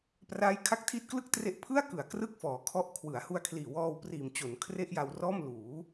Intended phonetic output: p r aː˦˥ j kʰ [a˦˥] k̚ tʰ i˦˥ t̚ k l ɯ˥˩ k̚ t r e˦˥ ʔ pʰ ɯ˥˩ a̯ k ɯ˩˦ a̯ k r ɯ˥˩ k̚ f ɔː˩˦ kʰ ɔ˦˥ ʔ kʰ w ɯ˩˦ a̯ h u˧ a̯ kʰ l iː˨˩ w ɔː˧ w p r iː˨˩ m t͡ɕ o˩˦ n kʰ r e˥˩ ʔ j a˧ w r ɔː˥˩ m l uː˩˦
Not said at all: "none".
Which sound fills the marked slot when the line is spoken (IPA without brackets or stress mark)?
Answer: a˦˥